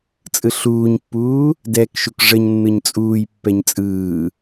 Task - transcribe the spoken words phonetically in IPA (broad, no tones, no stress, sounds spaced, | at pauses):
t͡sʼ ɯ ɬ uː ɲ pː uː | d ɛ k ʃ u k ʐ ə ɲ nː ɯ ɲ t͡sʼ uː j pː ɛ ɲ t͡sʼ ɯː